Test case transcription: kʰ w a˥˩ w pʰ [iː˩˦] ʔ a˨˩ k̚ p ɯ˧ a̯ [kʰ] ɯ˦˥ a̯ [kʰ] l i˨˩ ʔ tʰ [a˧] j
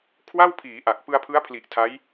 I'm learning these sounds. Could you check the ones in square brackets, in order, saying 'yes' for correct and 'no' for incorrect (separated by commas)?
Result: yes, no, no, no